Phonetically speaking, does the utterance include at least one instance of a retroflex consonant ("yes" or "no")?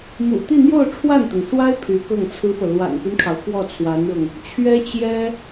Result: yes